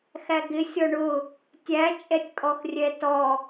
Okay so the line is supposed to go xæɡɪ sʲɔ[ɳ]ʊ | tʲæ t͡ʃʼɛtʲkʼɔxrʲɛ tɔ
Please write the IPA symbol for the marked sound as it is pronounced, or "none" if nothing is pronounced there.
ɳ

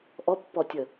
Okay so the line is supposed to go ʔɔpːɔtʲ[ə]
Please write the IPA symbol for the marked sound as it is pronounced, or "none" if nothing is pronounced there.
ə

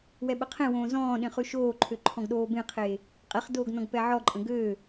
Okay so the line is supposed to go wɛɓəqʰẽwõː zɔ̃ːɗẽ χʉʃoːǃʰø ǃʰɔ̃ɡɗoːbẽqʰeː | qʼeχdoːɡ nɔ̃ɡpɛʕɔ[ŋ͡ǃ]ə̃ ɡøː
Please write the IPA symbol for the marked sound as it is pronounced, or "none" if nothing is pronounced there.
ǃʼ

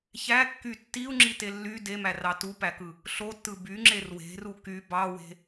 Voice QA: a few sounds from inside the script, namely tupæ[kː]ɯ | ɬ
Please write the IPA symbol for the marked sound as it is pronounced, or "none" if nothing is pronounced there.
k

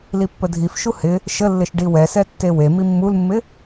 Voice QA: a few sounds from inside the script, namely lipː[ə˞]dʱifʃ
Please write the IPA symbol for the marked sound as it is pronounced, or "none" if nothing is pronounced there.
ə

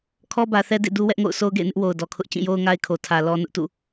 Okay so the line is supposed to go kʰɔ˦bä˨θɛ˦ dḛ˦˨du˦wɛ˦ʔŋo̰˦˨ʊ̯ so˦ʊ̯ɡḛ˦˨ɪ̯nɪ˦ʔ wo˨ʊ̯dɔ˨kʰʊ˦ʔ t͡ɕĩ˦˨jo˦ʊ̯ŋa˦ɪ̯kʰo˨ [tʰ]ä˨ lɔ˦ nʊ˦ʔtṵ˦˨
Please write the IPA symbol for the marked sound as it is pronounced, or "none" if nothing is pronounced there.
tʰ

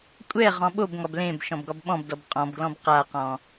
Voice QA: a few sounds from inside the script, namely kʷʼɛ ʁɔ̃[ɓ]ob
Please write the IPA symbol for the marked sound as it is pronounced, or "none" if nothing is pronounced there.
ɓ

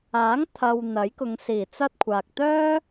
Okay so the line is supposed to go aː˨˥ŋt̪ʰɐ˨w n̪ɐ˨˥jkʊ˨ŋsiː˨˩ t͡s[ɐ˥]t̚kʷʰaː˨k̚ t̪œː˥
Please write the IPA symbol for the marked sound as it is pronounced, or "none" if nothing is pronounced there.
ɐ˥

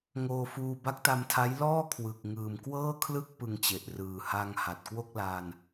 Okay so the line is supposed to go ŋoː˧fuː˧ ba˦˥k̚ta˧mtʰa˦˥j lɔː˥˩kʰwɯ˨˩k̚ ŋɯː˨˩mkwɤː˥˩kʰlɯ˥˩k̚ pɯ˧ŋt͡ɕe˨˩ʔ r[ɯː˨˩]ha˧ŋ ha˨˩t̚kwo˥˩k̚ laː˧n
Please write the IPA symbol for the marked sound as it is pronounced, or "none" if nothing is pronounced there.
ɯː˨˩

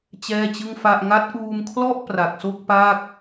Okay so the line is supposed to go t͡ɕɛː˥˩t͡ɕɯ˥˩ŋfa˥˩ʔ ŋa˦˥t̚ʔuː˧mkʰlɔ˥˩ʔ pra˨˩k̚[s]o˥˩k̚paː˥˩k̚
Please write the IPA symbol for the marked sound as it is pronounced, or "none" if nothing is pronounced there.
s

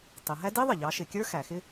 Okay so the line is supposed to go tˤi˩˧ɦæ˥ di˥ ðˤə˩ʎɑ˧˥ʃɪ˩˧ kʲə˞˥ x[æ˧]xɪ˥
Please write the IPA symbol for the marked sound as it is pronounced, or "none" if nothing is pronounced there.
æ˩˧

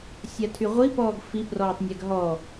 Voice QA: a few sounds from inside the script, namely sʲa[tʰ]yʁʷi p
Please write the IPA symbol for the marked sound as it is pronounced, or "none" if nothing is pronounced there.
tʰ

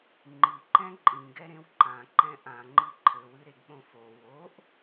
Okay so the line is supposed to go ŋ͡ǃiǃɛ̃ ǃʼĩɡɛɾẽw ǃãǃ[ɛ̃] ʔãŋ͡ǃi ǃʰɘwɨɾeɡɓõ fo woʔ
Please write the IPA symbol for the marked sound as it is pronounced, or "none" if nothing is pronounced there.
ɛ̃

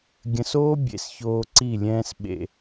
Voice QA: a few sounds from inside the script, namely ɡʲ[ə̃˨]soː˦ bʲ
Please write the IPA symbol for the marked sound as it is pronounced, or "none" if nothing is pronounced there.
ə̃˨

